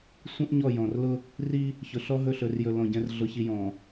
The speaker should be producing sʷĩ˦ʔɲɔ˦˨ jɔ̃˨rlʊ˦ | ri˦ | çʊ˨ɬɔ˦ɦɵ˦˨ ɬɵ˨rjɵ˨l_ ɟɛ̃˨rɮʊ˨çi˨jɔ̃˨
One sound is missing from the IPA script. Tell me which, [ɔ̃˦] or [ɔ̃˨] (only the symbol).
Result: ɔ̃˨